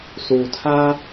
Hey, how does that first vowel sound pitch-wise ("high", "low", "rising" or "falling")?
low